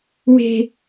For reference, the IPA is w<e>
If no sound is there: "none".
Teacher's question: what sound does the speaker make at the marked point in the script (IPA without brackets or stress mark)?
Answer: e̤